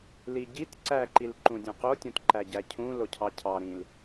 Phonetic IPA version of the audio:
l i ɟ i t ǀ æ ǃ i l ǃ ũ dʲ õ q o tʲ õ t ǃ æ ɟ æ cʰ ũ l o cʰ ɑ cʰ ɑ ɾ ĩ l

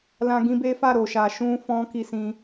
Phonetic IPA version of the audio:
l ã˦ ɡ ĩ˦ b e˦ f a˦˨ ɾ o˨ ʃ a˨ ʃ ũ˧ f ɔ̃˧ k i˧ s ĩ˧

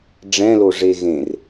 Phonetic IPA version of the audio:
ɖ͡ʐ ɛ̃ l o ʐ e ɣ ẽ r

